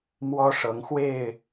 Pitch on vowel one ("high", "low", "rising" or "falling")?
high